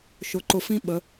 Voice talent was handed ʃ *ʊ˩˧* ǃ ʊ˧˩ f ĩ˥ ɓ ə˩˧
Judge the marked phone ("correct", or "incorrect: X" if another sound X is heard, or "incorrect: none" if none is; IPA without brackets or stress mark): correct